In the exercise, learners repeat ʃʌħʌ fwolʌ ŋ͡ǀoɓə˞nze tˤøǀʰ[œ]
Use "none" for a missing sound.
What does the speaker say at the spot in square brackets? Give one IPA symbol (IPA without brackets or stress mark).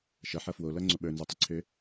ø